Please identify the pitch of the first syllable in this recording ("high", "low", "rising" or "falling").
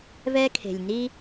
high